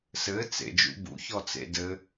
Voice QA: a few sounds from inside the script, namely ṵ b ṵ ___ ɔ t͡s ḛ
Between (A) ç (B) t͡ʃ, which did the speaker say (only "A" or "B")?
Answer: A